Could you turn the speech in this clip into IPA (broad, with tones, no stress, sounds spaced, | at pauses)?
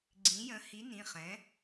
ɡ͡ǀ ĩ˨˥ j ə̃˨˥ h i˨˥ n ĩ˩˧˩ χ ɛ̃˨˥